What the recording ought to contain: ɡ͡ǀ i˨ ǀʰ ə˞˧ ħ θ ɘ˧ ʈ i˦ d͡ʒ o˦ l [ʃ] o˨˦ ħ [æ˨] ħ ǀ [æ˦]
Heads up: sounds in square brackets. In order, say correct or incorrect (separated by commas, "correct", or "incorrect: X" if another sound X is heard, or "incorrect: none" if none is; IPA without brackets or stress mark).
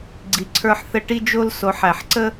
incorrect: s, correct, incorrect: ə˦